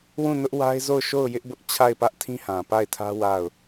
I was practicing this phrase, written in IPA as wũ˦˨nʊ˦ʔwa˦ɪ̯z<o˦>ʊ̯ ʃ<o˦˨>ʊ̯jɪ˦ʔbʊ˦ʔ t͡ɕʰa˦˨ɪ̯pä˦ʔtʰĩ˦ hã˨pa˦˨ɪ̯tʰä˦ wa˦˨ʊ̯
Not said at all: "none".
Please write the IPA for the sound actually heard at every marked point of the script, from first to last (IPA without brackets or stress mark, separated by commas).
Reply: o˦˨, o˦˨